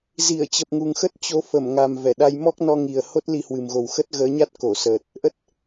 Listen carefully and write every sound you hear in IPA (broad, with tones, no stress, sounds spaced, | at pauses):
z i˧˩ ə̯ t͡ɕ ə˨˩ p̚ ŋ u˨˩ ŋ x ə˦˥ t̚ t͡ɕ o˨˦ f ə˧˩ m ŋ a˨˩ m v ɛ˧˩ ɗ a˧ j m ɔ˦˥ k̚ n ɔ˧ ŋ i˨˩ ə̯ h o˦˥ t̚ l i˧ h w ɨ˨˩ m ɣ o˨˩ w x ə˦˥ t̚ ɣ əː˨˦ ɲ a˦˥ t̚ k o˧˩ s əː˨˩ t̚ | ʔ ə˦˥ t̚